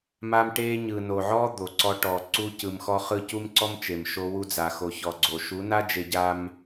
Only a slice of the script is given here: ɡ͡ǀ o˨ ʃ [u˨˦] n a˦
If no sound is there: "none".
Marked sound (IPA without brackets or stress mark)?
u˨˦